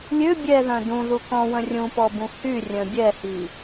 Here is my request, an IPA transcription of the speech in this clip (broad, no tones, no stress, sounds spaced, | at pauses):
lʲ ø bʲ ɛ ð œ̃ d ũ ð u k ɔ̃ w ə̃ rʲ ũ p ɔ b ũ h y rʲ œ̃ bʲ ɛ h i